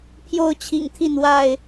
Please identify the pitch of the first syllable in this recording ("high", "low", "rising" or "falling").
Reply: falling